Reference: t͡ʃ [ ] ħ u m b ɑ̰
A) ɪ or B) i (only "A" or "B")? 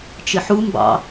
A